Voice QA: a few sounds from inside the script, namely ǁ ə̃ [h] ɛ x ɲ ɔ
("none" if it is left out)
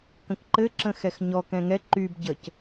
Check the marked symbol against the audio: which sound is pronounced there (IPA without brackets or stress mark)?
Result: x